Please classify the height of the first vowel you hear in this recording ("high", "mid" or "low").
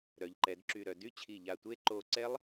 mid